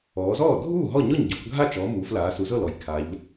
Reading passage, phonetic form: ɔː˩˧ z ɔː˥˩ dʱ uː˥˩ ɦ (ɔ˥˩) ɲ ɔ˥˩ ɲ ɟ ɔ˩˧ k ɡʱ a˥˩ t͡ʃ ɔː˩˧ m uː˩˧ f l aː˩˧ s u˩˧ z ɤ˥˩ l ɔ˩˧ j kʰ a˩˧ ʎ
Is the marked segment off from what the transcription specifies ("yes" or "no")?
no